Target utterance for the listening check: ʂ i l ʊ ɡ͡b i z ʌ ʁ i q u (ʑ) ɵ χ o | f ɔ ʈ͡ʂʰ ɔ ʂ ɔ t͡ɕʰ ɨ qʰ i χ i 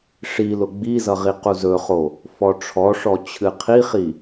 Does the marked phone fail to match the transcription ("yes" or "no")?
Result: yes